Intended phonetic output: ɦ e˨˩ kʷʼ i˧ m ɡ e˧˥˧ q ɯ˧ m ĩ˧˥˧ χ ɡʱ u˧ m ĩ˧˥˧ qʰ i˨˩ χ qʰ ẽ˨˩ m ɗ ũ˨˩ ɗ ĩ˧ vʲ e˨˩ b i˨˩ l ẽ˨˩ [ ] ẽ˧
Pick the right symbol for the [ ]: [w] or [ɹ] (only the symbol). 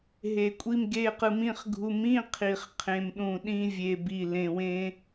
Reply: w